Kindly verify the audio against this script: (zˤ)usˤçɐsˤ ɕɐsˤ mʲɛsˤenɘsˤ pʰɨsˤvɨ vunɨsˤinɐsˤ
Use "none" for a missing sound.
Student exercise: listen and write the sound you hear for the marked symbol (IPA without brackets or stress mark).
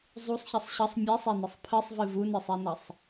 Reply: zˤ